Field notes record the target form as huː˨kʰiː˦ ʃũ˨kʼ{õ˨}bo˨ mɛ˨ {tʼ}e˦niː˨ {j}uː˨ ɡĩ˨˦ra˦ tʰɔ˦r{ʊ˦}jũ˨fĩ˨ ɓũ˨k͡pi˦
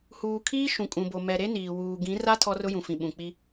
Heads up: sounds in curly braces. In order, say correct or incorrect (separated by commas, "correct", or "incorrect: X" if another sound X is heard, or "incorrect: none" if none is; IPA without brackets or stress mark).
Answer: incorrect: ũ˨, incorrect: ɾ, incorrect: w, correct